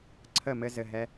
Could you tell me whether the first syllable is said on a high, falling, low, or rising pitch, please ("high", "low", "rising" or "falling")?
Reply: falling